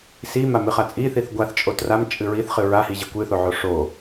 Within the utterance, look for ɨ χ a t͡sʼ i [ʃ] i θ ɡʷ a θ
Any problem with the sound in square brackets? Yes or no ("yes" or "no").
yes